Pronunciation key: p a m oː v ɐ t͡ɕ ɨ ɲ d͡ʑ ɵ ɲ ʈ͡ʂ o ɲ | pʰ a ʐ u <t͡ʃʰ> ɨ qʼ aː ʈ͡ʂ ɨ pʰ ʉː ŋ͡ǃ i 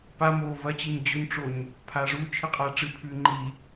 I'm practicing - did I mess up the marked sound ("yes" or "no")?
no